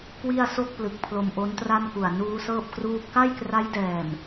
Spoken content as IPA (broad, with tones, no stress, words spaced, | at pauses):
kwi˥˩a̯so˥˩k̚plɯ˨˩k̚ pʰlo˧mʔo˦˥ntra˥˩nku˨˩a̯ nuː˦˥sɤː˥˩p̚kruː˥˩p̚ ka˥˩jkra˦˥j dɛː˨˩m